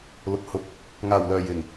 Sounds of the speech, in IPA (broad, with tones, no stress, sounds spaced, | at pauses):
l ʊ˨ k̚ h ʊ˨˥ k̚ | ŋ aː˨˩ w l œː˨˩ j ɪ˨˩ ŋ